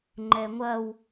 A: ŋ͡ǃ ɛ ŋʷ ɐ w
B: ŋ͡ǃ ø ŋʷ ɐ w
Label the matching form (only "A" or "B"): A